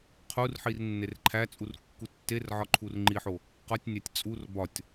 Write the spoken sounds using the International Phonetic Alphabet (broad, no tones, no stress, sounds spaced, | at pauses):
qʰ u r ħ i r nː e r ǃʰ æ t͡sʼ u r kː u tː e r ʕ ɒ ǃʰ u r ŋ͡ǃ i ħ o | q ɒ tʲ nʲ æ tʲ t͡sʼ u r b ɒ tʲ